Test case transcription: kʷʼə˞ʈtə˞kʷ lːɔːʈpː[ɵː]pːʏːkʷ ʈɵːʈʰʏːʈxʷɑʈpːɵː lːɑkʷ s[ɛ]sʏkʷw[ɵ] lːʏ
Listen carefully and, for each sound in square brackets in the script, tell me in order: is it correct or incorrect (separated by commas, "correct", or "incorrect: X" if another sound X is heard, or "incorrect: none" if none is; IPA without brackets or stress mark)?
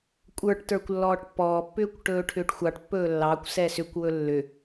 incorrect: ɔː, correct, correct